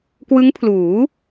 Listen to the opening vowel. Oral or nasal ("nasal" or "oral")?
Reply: oral